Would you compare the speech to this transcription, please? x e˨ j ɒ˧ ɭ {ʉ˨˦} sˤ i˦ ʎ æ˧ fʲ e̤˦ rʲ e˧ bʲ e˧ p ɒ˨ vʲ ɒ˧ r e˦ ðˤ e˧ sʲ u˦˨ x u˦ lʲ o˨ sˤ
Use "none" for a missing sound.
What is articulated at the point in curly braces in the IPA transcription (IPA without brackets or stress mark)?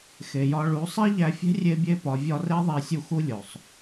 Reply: u˨˦